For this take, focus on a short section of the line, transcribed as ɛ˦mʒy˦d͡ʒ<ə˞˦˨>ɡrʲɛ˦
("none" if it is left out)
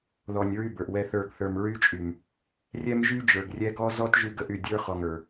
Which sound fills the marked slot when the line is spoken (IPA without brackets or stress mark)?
ə˞˨